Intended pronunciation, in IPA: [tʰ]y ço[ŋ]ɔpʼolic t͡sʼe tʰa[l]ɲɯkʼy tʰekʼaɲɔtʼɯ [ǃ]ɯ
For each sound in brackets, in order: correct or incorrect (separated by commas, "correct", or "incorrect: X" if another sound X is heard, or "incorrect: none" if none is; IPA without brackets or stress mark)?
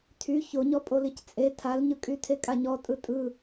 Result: correct, incorrect: ɲ, correct, incorrect: tʼ